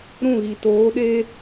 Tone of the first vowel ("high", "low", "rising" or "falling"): falling